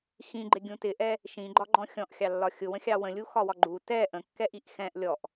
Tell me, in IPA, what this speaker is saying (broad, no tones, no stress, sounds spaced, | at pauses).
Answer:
x ĩ ɡ͡ǃ ɪ ɡʲ ũ t ɪ ʔ ɛ | ʃ ĩ ɡ͡ǃ ɒ ɡ͡ǃ ɔ̃ xʲ ɔ̃ ʔ xʲ ɑ lː ɒ xʲ ʊ w ə̃ xʲ ɑ w ə̃ lʲ u x ɒ w ɒ ɡ͡ǃ u t ɛ ʔ ə̃ kː ɛ ʔ i ʔ x ɛ̃ ʔ lʲ ɔ ʔ